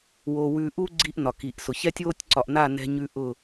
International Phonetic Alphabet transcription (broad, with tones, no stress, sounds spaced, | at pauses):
w o˨ w ʉ˨ ʔ u˦ ɡ͡ǀ i˦ ʔ n ɒ˨ k i˨ ʔ s ʊ˨ ç ɛ˦ tʲ w o˦ tʲ ǀ ɒ˨ ʔ n a˦˨ n ɛ̤˦ ɲ ʉ˦ ʔ ʊ˦˨